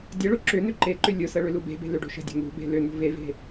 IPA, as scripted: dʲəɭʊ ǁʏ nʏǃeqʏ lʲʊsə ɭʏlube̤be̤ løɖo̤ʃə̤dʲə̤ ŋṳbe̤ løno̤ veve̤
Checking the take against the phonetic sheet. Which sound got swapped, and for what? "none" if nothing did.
q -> ǃ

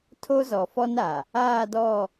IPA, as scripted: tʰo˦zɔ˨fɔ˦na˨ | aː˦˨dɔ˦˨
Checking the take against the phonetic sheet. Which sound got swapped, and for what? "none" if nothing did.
none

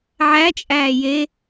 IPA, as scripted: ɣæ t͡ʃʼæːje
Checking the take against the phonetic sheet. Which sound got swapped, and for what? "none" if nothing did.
ɣ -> ʕ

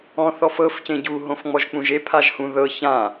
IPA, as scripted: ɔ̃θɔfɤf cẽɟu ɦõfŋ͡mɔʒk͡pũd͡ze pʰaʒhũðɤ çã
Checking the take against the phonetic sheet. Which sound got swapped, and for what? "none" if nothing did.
d͡z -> ʒ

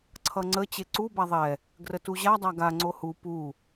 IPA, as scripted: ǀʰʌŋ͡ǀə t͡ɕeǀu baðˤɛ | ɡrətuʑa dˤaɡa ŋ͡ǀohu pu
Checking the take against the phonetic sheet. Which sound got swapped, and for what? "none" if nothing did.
none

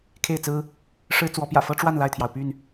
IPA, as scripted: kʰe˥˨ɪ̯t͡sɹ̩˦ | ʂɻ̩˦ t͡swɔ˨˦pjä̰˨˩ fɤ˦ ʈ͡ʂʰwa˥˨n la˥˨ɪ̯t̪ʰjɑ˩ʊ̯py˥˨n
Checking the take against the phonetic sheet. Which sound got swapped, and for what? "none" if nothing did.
ʈ͡ʂʰ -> ʈ͡ʂ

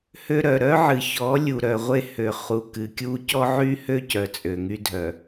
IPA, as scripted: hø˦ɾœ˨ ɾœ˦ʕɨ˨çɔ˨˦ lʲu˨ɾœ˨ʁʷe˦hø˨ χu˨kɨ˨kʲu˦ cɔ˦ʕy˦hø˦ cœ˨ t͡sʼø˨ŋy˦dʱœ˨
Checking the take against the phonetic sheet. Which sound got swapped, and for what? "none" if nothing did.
none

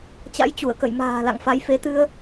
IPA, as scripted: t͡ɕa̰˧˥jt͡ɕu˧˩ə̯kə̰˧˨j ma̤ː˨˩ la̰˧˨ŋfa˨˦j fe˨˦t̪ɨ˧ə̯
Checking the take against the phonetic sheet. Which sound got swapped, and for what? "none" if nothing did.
none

